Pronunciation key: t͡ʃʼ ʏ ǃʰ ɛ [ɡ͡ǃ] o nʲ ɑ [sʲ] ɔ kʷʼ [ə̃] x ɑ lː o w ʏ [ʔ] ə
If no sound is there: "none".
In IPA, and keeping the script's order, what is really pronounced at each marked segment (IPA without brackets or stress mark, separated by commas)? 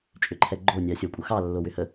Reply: ɡ͡ǃ, sʲ, ə, h